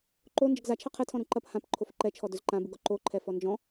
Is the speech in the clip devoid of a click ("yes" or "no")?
no